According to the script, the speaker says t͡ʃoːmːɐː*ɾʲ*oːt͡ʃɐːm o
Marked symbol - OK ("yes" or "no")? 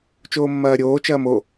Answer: yes